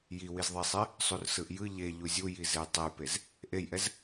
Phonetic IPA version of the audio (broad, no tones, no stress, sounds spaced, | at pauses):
j i w i z ðˤ e sˤ e | sˤ u r s ɯ ʔ j ɯ ʎ e ʎ u zʲ u j i z e j tˤ e j p e z | ʔ e j ʔ ɛ z